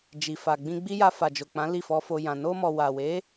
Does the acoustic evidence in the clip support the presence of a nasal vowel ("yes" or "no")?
yes